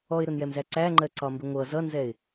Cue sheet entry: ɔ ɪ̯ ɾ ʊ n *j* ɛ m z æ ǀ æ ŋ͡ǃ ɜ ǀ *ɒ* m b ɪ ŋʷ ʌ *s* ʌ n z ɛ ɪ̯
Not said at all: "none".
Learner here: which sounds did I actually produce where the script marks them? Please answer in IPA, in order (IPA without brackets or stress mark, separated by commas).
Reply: j, ɒ, z